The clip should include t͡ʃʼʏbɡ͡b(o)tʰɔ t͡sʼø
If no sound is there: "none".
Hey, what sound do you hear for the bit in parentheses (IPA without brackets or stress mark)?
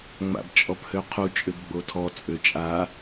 o